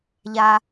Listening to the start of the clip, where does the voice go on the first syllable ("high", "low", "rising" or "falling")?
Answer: low